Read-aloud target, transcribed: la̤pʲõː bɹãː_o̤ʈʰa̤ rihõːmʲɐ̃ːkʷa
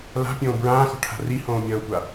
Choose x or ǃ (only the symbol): x